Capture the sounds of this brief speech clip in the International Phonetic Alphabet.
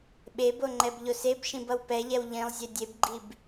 ɓ e b o ŋ͡ǃ ɛ b ʎ o s e b ʃ ĩ b ʌ w p ɛ ʎ ɛ w ʎ ĩ lˠ zʲ e dʲ e b ɡ͡ǃ i b

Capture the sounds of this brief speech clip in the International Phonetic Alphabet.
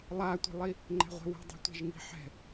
lˠ a tʷ i̤ lˠ i | ŋ͡ǃ ɛ̤ ʁʷ ɛ̤ w ɛ̤ dˤ i̤ tʷ ɛ̤ ʒ ŋ i̤ ħ ɛ̤

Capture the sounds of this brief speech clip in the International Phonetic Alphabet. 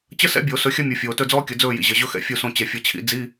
t͡ɕ ə˥ s ɛ̰˥ bʲ o˨˩˦ s ɵ˨˥ xʲ ɐ˥ mʲ u˨ fʲ oː˨ t ɵ˥˨ d͡z ɔː˥ kʲ ə˨˩˦ d͡z ɵː˥˨ j ḭ˨ ʑ ɐ˨ ʑ ɵ˥ x ɛ̰˨ fʲ u˥˨ s õ˥˨ t͡ɕ ɛ˨ fʲ ɐ˨˥ t͡ɕʰ ḭ˨˥ d͡z i˧˥˧

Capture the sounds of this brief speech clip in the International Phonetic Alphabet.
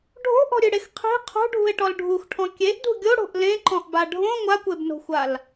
ɖʱ o̤ ʔ ɔ̤ ɾʲ ɨ ɽ e x qʰ i̤ qʰ o̤ ɖʱ ṳ e̯ ʈ ɔ l ɖʱ u x ʈʰ ɔ̃ kʲ e ʔ d ṳ ɡʲ o ɽ o̤ ʔ l ẽ ǃ ɔ̃ ʔ b a ɖʱ õ ŋʷ a kʷ e b n o̤ xʷ a l

